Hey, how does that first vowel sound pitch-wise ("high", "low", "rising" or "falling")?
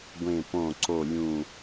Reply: low